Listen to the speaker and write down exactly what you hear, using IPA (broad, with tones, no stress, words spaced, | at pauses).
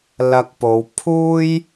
lɐ˧k̚po˨˧w pʰuː˥j